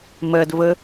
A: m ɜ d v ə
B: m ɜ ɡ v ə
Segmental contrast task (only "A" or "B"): A